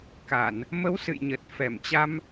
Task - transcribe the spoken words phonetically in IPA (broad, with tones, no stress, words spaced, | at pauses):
ka˧˩˨n | mə˨˦w sɨ̰˧˨jɲə˨˩t̚ fɛ˧˩mt͡ɕa˧m